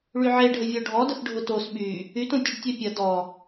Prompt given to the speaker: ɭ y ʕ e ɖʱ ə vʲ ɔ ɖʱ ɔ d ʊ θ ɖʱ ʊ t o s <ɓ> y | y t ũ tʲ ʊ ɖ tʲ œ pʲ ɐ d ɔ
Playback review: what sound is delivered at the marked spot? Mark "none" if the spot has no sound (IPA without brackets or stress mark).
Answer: ɓ